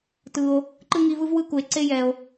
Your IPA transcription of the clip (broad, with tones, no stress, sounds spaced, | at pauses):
t ɯ˨ o̯ | ǃ ɯ˥ ŋ i˦ v ɯ˥ v w ɯ˥ k u˨ e̯ ǀ e˥ j ɛ˨ o̯